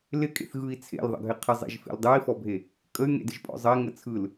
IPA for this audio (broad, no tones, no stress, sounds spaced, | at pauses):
l ɪ kʼ ḛ θ ɣ ɯ i̯ t͡sʰ ḛ l ðˤ ə̰ ɡʱ ɪ qʰ ɪ zˤ ḛ ʒ f ḛ l dˤ ɯ i̯ f ɔ bʱ e | kʼ ə y̯ ŋ ḛ d ɪ ʒ pʼ ɔ̰ zˤ ə i̯ ŋ ə t͡sʰ ɯ l